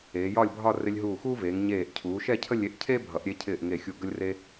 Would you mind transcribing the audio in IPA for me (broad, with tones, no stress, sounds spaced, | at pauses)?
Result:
eː˩˧ j ɒ˥˧ lʲ bʱ ɒ˥˧ r ɪ˧ lʲ ɦ uː˧˩ x uː˥ v eː˩˧ ŋ ɲ eː˧˩ ʔ cʰ uː˩˧ ʃ ɛ˥˧ cʰ ə˥˧ lʲ e˧ ʔ cʰ e˥ bʱ ʌ˩˧ ʔ ɾʲ e˧ cʰ ɪː˧˩ ʔ ŋ e˧˩ xʲ u˧˩ ɡ ə˥ lʲ r e˥